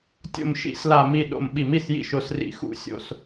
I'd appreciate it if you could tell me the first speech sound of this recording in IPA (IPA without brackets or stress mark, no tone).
tʲ